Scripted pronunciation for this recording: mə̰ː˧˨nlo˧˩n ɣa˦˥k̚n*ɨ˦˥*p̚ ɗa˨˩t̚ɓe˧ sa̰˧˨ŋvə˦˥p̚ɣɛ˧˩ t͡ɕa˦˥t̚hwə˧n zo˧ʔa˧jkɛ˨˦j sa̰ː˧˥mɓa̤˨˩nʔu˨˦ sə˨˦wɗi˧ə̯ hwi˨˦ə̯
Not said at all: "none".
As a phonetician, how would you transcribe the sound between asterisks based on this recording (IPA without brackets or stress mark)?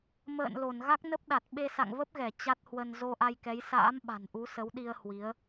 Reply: ə˦˥